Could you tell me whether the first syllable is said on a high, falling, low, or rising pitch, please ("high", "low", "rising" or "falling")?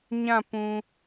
falling